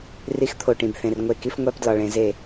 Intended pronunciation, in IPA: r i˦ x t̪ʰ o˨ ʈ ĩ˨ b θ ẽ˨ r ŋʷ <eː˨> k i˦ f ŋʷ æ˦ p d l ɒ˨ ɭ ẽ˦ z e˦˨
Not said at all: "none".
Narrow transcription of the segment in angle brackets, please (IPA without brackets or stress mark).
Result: e˨